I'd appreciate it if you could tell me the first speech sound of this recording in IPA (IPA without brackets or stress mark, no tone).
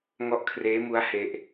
ŋ